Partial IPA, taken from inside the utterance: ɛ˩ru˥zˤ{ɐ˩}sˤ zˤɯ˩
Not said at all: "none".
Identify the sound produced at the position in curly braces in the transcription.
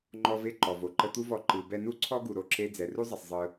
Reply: ɐ˩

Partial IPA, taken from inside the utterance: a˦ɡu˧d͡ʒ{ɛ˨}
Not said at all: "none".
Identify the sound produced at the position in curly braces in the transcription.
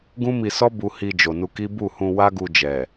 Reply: ɛ˨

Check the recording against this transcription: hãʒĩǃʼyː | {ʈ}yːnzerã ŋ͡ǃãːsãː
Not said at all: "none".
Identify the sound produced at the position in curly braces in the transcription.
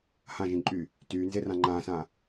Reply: t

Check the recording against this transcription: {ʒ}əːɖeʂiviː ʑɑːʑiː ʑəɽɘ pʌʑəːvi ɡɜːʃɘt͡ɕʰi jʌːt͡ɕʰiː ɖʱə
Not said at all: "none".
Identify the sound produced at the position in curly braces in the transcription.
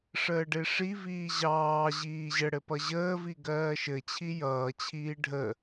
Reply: ʂ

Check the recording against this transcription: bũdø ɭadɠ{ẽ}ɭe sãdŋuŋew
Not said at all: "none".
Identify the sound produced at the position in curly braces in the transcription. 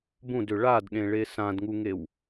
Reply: ẽ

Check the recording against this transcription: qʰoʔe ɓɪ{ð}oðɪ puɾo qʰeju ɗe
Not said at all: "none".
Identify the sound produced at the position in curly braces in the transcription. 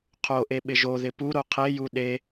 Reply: ʒ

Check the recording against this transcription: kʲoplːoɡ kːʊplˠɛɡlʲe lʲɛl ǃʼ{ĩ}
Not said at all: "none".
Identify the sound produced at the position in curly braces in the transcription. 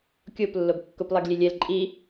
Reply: i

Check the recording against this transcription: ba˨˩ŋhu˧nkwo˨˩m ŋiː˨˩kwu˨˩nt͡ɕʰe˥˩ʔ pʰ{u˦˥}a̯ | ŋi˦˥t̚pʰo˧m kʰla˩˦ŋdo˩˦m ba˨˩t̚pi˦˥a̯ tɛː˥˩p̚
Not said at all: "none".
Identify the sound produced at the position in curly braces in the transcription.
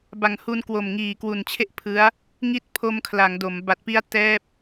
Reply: ɯ˦˥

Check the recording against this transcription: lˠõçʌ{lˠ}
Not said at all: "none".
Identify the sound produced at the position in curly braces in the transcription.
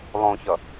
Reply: none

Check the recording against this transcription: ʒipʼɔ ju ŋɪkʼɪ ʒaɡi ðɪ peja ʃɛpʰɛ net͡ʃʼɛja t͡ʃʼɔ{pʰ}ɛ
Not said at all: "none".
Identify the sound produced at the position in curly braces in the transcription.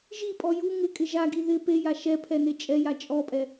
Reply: pʼ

